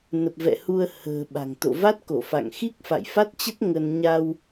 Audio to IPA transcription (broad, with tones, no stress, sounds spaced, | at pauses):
n ə˨˩ p̚ v ɛ̰˧˨ h u˧ ə̯ h ə̤ː˨˩ ɓ a̤˨˩ ŋ t̪ o̰˧˨ v a˦˥ t̚ k o˧˩ f a̰˧˨ ŋ x i˦˥ k̚ f a̰˧˨ j f a˦˥ t̚ t͡ɕ ə˦˥ t̚ ŋ ə˧ n ɲ a˧ w